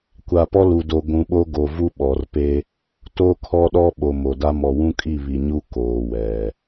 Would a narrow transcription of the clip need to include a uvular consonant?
no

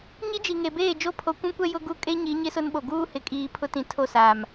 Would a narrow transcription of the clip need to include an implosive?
yes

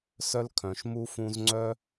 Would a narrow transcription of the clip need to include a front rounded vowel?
yes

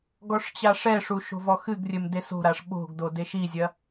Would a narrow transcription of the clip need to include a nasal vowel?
no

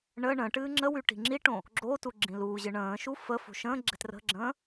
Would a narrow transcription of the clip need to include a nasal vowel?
yes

